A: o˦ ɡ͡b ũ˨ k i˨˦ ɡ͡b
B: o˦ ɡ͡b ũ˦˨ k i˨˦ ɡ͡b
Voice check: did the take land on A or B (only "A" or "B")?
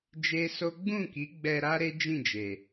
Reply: B